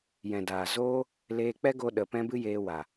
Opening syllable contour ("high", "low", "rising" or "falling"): low